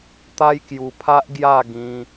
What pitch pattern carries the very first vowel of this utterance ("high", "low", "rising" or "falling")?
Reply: high